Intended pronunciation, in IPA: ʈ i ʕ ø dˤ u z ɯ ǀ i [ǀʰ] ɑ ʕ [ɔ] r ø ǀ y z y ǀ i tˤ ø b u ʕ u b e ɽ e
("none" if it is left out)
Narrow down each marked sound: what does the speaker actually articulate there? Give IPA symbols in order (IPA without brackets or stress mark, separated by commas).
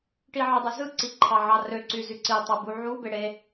ǃʰ, ɑ